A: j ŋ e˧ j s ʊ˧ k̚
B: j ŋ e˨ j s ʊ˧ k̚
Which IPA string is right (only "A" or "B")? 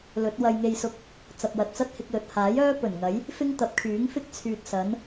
A